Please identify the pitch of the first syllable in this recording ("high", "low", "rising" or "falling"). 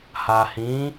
low